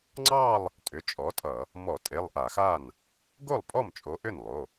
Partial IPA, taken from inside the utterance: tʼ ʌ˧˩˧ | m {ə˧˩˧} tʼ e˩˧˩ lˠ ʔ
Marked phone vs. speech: incorrect: ɔ˧˩˧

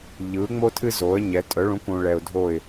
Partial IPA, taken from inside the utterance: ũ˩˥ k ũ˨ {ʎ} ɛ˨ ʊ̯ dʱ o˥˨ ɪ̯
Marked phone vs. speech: incorrect: ɭ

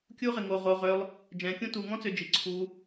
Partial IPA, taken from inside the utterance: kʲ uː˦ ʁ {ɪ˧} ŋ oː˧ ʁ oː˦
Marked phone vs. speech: correct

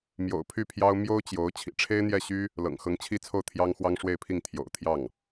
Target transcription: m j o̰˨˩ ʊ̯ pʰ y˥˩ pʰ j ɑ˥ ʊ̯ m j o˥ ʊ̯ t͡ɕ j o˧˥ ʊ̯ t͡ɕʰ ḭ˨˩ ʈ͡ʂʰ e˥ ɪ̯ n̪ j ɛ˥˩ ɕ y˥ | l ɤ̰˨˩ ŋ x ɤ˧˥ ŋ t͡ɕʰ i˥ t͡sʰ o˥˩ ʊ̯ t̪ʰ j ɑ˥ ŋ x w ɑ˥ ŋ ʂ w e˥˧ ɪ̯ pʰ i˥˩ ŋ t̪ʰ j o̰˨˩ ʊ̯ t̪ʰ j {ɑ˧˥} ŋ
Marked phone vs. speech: incorrect: ɑ˥˩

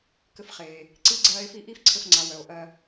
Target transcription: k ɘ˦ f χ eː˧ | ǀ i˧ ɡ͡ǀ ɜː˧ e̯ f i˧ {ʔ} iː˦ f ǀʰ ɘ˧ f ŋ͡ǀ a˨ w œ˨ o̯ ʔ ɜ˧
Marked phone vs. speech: correct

